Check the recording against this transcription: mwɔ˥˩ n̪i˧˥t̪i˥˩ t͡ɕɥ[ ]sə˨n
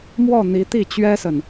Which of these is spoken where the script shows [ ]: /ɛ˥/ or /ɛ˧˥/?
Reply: ɛ˥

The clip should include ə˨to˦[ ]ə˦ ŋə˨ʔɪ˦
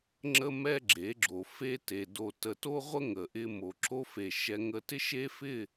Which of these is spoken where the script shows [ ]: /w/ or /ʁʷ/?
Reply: ʁʷ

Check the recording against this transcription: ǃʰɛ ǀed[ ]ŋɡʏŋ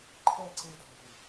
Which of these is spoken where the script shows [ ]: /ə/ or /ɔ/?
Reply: ɔ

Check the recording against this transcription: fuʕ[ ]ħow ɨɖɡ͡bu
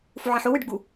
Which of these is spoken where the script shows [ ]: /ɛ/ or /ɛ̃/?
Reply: ɛ̃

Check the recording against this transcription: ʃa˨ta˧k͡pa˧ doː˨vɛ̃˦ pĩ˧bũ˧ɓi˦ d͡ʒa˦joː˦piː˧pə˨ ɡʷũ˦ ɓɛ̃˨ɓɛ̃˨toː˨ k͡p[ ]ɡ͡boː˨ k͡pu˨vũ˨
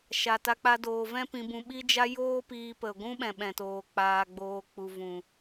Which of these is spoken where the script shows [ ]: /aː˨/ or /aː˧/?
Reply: aː˨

